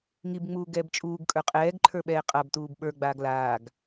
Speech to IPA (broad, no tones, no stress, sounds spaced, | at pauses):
ŋ i b ŋ͡m uː ɡ ɛː b t͡ʃʼ uː ɡ kʼ ə˞ qʼ ɛː ɡ ǃʰ ə˞ ɓ ɛː qʼ a b t uː b ɓ ə˞ ɡ͡b aː ɡ l aː ɡ